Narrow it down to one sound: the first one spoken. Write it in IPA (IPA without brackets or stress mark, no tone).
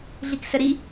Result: ɮ